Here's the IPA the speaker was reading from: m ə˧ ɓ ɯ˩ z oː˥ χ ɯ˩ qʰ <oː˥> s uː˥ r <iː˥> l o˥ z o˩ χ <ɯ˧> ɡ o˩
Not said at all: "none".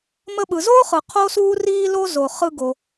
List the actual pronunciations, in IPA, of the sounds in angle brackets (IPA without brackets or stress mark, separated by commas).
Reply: o˥, iː˥, ɯ˧